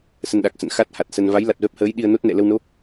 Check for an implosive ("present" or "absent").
present